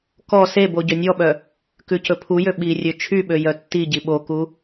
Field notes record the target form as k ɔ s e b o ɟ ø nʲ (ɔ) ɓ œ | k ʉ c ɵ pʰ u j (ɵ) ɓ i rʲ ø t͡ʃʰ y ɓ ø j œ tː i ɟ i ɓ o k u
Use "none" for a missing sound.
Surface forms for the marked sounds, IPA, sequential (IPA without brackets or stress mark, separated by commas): ɔ, ø